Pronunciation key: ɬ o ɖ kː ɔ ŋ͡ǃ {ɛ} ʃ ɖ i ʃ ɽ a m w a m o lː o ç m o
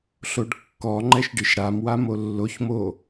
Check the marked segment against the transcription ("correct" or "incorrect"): correct